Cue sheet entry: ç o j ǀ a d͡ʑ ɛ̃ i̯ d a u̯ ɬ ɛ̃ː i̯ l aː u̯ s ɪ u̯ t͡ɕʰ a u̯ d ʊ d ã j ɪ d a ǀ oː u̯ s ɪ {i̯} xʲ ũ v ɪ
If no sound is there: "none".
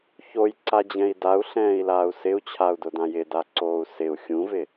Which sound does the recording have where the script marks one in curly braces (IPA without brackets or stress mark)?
u̯